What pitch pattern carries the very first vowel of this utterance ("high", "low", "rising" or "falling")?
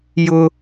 high